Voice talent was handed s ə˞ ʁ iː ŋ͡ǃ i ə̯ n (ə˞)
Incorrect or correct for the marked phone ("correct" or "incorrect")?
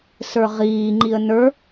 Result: correct